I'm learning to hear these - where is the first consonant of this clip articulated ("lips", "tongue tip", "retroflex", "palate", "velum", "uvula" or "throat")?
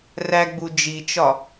tongue tip